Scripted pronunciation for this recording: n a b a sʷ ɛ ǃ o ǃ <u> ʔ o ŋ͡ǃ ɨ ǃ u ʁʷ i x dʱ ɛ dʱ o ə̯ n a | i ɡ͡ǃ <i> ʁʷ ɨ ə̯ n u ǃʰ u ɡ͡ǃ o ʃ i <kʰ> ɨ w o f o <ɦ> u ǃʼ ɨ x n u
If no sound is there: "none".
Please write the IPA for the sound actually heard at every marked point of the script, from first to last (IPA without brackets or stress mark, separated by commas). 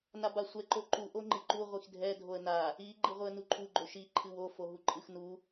u, ɨ, ǃʰ, ɦ